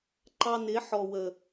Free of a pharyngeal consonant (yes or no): no